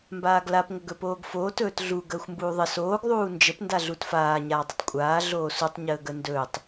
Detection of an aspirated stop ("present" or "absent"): absent